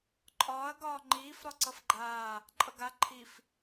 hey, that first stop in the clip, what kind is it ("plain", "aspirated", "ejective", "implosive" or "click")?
click